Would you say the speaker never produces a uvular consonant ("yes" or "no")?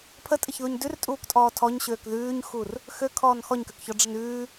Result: yes